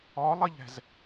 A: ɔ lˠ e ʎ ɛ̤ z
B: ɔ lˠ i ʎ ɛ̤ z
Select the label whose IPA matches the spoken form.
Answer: B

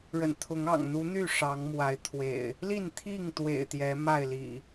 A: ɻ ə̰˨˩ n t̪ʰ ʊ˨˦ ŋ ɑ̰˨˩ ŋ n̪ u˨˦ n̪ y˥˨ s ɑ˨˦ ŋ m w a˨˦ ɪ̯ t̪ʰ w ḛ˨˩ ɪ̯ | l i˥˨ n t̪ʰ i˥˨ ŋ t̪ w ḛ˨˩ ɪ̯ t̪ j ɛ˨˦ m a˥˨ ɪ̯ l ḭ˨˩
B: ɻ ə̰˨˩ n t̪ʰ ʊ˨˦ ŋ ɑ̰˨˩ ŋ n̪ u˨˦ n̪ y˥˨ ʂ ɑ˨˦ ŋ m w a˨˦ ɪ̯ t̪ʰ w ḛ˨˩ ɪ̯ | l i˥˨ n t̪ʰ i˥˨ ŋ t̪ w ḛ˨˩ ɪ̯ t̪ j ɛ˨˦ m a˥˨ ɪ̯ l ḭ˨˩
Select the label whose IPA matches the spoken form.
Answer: B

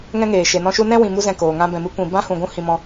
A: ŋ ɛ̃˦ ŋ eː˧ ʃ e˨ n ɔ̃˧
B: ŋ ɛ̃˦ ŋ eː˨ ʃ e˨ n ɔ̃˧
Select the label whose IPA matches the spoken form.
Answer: B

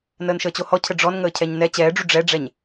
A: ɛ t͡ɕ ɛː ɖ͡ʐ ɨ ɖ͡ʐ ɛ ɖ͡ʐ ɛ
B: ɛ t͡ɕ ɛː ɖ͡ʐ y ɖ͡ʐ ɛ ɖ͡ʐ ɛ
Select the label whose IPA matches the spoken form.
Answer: B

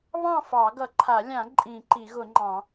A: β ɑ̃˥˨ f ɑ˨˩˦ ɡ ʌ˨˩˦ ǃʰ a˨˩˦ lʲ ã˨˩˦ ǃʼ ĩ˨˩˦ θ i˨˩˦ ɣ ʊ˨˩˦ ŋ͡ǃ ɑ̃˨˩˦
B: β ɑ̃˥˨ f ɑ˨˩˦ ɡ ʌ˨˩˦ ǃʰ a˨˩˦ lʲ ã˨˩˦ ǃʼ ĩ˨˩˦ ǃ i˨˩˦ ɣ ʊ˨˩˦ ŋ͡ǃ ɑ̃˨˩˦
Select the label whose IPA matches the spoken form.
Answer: B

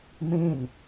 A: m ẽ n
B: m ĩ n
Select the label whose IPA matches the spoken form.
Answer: A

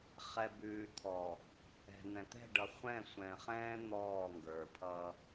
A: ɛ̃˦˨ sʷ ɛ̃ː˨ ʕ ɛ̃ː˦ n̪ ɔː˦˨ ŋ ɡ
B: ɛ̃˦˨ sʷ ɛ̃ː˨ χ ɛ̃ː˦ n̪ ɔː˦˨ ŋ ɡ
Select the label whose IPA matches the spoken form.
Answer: B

